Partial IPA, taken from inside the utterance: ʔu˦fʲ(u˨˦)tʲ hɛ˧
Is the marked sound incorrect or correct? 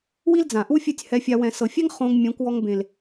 incorrect